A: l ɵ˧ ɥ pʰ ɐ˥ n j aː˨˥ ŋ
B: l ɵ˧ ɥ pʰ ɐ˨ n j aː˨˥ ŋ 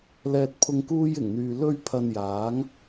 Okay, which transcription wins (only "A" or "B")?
B